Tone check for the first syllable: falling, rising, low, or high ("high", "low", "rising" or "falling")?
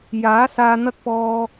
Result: rising